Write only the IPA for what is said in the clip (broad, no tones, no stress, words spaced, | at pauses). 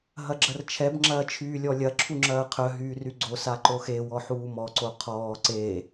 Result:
ɦɐɡ͡ǁɐrt͡ʃʰɛb ŋ͡ǁɐːt͡ʃʰyːlʲɔlʲɐ ǁʰuŋ͡ǁɐːqʰœ ɦyːryɡ͡ǀo saǃoxe wɔħuːmɔ ǀoqʰɔː ǀe